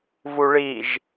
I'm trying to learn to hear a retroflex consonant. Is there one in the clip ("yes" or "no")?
yes